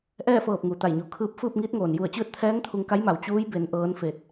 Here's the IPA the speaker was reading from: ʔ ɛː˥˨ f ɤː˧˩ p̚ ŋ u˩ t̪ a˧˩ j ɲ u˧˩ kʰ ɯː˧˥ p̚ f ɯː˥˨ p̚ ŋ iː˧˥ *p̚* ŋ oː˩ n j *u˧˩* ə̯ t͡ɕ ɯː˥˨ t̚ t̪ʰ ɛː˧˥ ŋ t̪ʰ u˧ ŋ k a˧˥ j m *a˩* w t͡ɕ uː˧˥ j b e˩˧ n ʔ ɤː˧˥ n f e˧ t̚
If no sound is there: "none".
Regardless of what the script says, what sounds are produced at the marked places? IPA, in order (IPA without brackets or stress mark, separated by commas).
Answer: t̚, u˧˩, a˩˧